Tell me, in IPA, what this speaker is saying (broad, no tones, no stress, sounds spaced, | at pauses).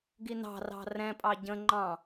ɡ i n ɑ̤ r ɑ̤ r ɛ̃ pʼ ɑ ɟ ə̃ ŋ͡ǃ ɑ̃